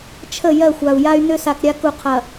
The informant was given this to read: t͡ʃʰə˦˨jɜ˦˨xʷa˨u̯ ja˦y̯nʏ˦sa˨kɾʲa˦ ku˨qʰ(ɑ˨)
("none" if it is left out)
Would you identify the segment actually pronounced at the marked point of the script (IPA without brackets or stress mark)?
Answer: ɐ˨